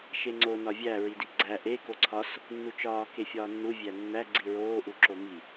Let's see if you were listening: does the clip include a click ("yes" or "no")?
yes